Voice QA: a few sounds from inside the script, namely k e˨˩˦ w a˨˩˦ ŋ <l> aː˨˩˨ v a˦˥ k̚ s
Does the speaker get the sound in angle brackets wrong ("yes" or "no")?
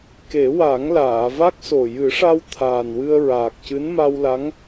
no